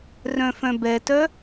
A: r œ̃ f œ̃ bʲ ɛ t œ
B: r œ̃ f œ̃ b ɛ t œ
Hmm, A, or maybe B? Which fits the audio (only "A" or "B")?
B